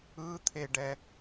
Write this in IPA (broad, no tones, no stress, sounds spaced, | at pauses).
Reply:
ɯ t̪ʰ e ɖ ɛ